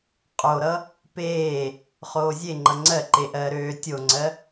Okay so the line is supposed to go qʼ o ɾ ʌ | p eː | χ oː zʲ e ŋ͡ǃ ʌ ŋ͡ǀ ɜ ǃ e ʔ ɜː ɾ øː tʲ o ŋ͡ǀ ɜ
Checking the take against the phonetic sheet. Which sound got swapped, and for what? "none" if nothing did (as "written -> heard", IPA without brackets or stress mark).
none